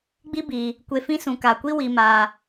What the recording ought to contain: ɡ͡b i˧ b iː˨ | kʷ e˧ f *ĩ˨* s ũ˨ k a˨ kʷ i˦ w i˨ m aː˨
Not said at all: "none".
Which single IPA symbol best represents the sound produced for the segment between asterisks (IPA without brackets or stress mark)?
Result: ĩ˦